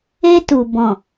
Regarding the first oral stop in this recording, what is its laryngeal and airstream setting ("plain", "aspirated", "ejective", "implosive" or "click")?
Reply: plain